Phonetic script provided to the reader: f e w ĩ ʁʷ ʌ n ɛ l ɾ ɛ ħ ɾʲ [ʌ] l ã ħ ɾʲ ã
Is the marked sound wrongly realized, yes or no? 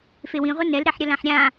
no